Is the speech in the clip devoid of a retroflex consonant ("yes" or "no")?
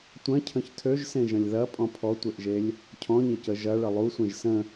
no